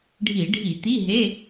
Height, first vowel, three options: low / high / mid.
high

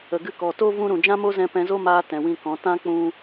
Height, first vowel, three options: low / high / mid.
mid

